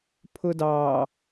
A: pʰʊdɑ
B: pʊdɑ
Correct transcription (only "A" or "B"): A